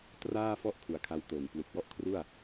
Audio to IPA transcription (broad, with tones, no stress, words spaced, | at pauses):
traː˥˩fɔ˥˩ʔ kʰu˨˩a̯kʰa˧w to˨˩n plu˨˩k̚wɔ˥˩ʔkʰru˥˩a̯